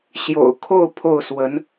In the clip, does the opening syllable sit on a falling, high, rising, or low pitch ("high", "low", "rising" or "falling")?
low